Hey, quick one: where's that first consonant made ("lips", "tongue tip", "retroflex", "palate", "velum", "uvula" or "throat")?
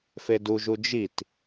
lips